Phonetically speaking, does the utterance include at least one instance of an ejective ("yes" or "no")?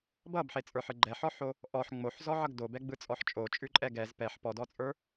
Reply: yes